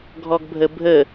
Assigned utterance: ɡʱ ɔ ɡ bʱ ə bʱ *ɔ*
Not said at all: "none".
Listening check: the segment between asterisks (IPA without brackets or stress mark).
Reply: ə